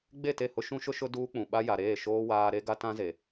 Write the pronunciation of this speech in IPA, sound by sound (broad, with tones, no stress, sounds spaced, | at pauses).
ɡ͡b e˦˨ t e˦˨ h ʊ˦ ʃ ũ˦ ʃ ʊ˦ ʃ ʊ˦ d uː˦ k͡p ũ˨ ɓ a˦ j a˨ ɾ eː˦˨ ʃ oː˦ w aː˦ ɾ e˦ ɡ a˦ t ã˦ z e˨